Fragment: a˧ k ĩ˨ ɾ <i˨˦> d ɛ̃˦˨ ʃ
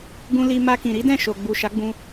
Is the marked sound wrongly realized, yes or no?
no